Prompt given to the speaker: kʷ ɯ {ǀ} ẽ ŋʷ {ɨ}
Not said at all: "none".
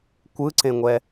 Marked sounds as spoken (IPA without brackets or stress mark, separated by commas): ǀ, ɛ